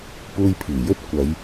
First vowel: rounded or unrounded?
rounded